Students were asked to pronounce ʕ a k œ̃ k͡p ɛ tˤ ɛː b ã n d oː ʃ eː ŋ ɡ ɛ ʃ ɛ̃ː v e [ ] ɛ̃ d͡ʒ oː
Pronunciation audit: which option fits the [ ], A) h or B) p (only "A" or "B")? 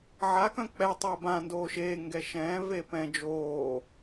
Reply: B